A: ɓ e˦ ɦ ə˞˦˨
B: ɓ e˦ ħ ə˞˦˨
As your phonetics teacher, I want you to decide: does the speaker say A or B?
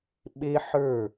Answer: B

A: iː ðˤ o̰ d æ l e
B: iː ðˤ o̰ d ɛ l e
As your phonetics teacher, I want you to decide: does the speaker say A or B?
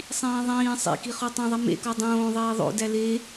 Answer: A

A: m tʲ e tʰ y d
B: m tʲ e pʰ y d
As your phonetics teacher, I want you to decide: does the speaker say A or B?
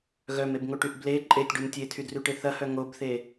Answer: A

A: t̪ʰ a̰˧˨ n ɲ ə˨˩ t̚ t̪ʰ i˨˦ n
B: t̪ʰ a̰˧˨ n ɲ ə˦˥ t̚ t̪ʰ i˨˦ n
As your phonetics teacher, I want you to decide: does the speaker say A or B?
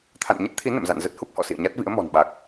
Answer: B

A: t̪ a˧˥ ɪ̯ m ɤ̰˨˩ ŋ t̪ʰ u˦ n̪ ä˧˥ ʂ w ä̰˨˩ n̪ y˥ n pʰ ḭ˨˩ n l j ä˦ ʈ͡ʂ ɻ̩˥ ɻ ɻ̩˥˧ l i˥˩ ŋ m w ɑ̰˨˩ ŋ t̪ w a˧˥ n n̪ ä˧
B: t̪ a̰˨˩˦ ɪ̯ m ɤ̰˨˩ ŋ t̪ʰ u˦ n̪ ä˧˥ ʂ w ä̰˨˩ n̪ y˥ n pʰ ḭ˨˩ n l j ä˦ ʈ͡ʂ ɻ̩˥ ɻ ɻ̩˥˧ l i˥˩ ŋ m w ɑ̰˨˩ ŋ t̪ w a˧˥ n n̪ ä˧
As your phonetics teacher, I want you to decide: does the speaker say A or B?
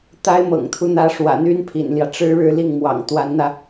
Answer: A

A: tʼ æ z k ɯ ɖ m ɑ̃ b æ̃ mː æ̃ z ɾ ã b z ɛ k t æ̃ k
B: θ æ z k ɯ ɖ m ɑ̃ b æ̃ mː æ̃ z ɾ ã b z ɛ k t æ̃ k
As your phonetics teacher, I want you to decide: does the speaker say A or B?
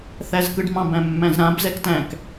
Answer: B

